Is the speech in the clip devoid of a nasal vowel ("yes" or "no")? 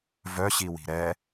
yes